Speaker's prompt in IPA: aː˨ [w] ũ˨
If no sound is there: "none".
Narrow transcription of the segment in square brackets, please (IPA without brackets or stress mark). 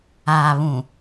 β